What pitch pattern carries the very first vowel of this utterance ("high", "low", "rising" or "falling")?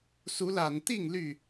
rising